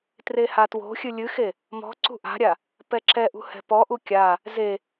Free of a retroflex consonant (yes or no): yes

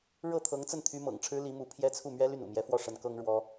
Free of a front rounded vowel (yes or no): no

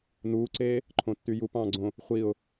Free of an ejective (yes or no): yes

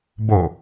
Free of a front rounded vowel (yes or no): yes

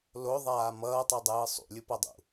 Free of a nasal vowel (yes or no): yes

